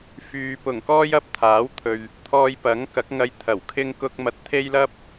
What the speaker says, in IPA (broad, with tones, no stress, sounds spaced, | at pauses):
f yː˨ p ʊ˨˩ ŋ k ɔː˥ j ɐ˥ p̚ t̪ʰ aː˨˥ w t̪ʰ ɵ˨ ɥ | t̪ʰ ɔː˧ j p ɐ˨˥ ŋ k ɐ˨˥ k̚ ŋ ɐ˧ j t̪ʰ ɐ˨˩ w kʰ ɪ˥ ŋ k ʊ˥ k̚ m ɐ˧ t̚ t̪ʰ e˥ j l ɐ˥ p̚